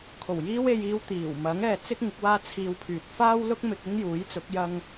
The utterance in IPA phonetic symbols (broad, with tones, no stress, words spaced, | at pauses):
kʰo˨˩wjiː˥we˧jiː˧w t̪iː˨˩w mɐ˨˥ŋɛː˨t͡sɪ˥k̚ ŋɪ˨˥k̚waː˥t͡sʰiː˧wpʰyː˨t̚ faː˥wlʊ˥k̚ mɪ˧k̚ɪ˥ŋjuː˨˥jt͡sʊ˨˥k̚ jɐ˥ŋ